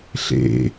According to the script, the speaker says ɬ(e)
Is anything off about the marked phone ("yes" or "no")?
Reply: yes